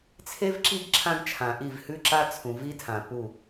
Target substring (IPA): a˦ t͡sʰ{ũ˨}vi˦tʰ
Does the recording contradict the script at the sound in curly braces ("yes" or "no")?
no